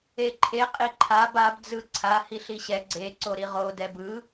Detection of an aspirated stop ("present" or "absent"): present